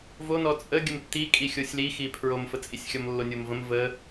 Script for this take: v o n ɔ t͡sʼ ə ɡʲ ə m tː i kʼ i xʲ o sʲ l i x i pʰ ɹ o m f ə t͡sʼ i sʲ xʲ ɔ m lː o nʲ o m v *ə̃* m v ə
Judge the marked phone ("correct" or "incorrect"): correct